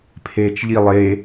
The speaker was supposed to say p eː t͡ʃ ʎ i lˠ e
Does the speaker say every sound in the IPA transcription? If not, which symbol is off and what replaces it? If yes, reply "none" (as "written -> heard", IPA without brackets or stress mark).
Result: p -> pʰ